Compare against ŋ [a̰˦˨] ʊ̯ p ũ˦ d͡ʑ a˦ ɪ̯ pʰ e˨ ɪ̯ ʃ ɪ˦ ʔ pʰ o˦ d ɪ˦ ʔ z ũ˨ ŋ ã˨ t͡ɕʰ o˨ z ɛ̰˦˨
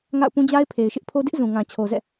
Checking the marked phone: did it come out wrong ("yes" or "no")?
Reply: no